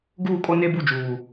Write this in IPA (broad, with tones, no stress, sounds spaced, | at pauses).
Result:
ɡ uː˦˨ kʼ o˦ n e˦ b u˦˨ d͡ʒ uː˨